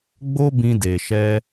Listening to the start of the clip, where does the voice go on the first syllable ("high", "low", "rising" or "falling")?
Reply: high